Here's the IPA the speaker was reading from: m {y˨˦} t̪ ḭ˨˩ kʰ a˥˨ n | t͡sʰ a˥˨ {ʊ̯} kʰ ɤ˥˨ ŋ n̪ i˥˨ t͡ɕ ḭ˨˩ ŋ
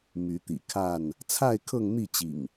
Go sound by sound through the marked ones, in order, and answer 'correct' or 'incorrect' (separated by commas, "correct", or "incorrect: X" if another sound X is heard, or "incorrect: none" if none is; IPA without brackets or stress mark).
correct, incorrect: ɪ̯